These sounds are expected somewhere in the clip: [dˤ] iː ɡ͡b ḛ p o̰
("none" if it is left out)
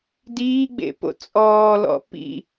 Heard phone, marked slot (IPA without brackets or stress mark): d